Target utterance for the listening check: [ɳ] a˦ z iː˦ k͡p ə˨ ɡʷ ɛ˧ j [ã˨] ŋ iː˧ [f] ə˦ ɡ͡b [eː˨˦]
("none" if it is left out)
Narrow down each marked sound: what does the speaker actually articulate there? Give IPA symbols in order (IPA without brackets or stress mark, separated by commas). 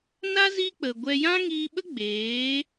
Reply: n, ã˦, ɓ, eː˨˦